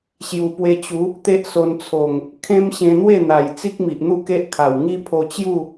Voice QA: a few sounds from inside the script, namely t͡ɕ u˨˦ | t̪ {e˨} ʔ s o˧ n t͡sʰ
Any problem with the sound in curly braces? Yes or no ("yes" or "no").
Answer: yes